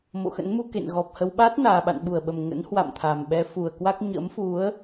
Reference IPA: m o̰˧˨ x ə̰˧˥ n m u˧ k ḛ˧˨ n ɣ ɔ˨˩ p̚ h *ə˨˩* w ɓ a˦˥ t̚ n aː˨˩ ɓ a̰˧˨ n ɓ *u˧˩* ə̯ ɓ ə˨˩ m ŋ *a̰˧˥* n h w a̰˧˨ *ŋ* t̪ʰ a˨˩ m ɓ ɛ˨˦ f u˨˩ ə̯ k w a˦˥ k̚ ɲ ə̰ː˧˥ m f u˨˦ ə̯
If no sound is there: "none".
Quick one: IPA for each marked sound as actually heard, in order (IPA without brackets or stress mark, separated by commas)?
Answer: ə˧, u˧˩, ə̰˧˥, m